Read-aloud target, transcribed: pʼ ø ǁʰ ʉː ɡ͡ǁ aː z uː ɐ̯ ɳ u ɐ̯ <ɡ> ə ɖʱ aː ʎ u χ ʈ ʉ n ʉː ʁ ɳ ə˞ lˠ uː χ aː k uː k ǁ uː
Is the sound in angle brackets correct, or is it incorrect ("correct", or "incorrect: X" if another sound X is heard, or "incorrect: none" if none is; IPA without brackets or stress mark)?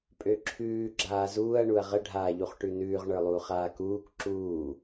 incorrect: ʁ